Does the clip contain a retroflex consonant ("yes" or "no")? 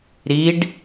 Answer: yes